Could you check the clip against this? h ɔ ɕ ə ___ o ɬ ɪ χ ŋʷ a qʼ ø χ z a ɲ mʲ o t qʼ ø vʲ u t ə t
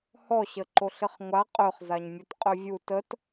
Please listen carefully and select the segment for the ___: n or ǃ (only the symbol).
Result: ǃ